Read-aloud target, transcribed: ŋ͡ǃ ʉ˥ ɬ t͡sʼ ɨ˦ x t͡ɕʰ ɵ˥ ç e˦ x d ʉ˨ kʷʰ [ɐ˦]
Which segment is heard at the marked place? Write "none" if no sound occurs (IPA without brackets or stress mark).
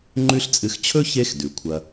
ɐ˦